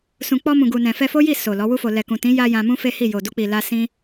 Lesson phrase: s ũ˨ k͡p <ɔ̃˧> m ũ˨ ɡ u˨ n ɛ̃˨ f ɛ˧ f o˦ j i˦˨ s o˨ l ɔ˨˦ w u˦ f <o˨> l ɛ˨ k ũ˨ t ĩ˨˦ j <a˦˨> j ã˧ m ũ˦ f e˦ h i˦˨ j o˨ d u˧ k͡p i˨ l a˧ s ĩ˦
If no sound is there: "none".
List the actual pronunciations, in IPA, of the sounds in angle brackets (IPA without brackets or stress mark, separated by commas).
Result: ɔ˧, o˧, a˧